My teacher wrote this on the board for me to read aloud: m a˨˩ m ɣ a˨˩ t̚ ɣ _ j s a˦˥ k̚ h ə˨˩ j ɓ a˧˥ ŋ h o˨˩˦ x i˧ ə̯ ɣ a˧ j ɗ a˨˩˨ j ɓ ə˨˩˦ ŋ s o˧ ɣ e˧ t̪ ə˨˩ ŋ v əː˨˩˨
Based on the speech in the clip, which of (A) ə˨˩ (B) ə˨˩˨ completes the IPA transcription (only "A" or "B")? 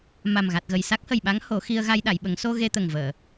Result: A